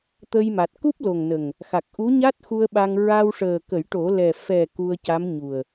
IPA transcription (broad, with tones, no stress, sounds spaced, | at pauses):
t̪ ə˧ j m a˨˩ t̚ k u˦˥ p̚ l o˨˩ ŋ n ə˨˩ ŋ | x a˨˩ k̚ ʔ u˧˥ ɲ a˦˥ t̚ x u˧ ə̯ ɓ a˧ ŋ ɹ a˧ w ʂ əː˨˩ k ə˨˩˦ j ʈ o˨˩˦ l ɛ˨˩ f ɛ˨˩ k u˧ ə̯ c a˧˥ m ɲ u˨˩ ə̯